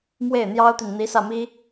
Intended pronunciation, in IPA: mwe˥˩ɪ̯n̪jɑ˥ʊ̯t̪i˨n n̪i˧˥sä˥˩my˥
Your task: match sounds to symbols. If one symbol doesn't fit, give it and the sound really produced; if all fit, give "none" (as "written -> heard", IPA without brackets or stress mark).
y˥ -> i˥